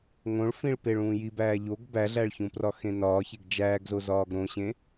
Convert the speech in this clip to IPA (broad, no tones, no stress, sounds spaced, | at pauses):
ŋ õ ɭ f ĩ ɭ p e ɭ ũː j i b æː ʎ o ɡ b æ ɮ æ ɭ ç ũ p r ɒ x ẽ n ɒː ç e ɡ d͡ʒ æː ɡ z o z ɒː ɡ ɾ õ ɕ ẽ